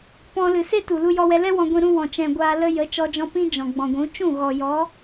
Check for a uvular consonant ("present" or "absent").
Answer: absent